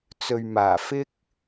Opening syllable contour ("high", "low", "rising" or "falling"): low